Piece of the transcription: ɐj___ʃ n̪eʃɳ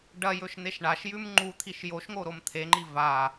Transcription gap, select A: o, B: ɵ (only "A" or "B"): B